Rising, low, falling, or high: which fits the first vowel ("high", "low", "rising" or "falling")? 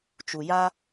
low